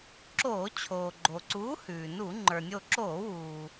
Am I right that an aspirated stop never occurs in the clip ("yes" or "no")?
no